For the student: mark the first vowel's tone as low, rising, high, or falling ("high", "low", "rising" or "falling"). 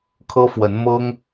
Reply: high